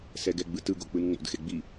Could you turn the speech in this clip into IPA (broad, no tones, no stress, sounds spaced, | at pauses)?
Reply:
s ɛ ɡ ɛ ɡ͡b ɯ t ɯ ɡ o k͡p ɯ n ŋ͡m o̰ d x e ɡ͡b i